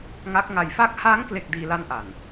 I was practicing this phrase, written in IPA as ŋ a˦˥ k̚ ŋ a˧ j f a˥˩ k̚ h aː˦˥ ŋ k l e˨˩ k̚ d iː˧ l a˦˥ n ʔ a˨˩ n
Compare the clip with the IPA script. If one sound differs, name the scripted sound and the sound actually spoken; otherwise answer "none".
none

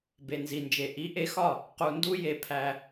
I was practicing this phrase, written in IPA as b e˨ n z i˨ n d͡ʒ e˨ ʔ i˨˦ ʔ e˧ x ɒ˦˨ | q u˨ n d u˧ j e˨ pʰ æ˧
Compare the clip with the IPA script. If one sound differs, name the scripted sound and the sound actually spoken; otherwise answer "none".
none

